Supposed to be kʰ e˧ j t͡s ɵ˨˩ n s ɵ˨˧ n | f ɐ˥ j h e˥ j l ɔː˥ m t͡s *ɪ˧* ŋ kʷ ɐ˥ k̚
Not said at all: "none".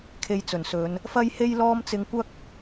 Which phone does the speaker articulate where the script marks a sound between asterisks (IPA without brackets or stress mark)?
ɪ˧